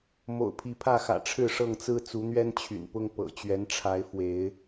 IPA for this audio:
m o̰˨˩ ʊ̯ pʰ i˨˦ pʰ ä˥˨ x ä̰˨˩ ʈ͡ʂʰ ɻ̩˥˨ ʂ ɤ˥˨ ŋ t͡s ɹ̩˦ t͡s u˨˦ n̪ ɥ ɛ˦ n t͡ɕʰ y̰˨˩ n p ʊ˦ ŋ p ɤ̰˨˩ t͡ɕ ɥ ɛ˨˦ n ʈ͡ʂʰ a˨˦ ɪ̯ f w e˨˦ ɪ̯

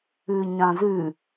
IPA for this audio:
ʉ ɲ ã z ʉ

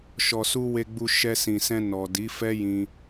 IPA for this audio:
ʃ ɔ˨ s u˧ w e˨ ɡ͡b u˨ ʃ ɛ˧ s ĩ˨ s ɛ̃˧ n ɔ˨ d i˨˦ f ɛ˦ j ĩ˧

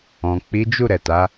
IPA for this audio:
ɔ̃˨ k͡p i˨˦ d͡ʒ u˦˨ ɾ ɛ˨ t a˨˦

